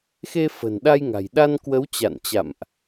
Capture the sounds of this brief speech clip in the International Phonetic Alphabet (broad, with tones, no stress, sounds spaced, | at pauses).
x e˧ f ə̤˨˩ n ɗ a˧ j ŋ a̤˨˩ j ɗ a˧ n k w ə˨˦ w t͡ɕ a̰˧˨ n t͡ɕ a̰˧˨ m ʔ